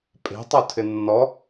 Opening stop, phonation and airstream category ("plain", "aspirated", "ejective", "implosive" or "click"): ejective